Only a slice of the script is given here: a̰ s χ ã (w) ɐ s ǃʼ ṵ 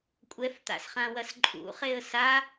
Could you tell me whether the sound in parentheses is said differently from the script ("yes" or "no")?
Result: no